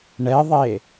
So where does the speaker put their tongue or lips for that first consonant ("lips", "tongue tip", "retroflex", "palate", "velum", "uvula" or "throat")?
retroflex